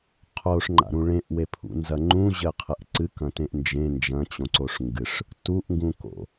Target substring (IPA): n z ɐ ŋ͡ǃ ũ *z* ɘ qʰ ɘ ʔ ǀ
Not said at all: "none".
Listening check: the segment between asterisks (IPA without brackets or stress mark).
ʑ